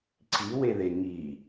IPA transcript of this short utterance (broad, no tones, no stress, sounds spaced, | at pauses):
ǀ i w e ð e ŋ i